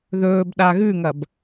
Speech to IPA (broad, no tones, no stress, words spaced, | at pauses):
ðɵːb ɗaɣʉŋɐb